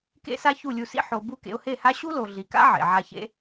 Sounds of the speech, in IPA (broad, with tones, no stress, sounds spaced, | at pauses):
k ḛ˦ s a˦ ç u˦˨ lʲ u˧ s ḭ˦ ħ o˧ b u˦˨ k ḛ˧ ʊ̯ h e˦˨ h a˦ ɕ u˦ l o˨ ɮ i˨ k a̰˦ ʕ ḛ˨ ʕ a˧ ç ḛ˦